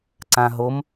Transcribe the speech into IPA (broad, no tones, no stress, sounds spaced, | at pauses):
ǀ ã ɦ o m